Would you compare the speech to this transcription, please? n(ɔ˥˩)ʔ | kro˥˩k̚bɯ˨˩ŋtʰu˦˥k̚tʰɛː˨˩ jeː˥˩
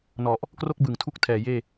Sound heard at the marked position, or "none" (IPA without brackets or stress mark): ɔ˨˩